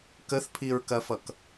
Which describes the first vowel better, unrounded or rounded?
unrounded